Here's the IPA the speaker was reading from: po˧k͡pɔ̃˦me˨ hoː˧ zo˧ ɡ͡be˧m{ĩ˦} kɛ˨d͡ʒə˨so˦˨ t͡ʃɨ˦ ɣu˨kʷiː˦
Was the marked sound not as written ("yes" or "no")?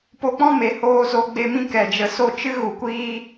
no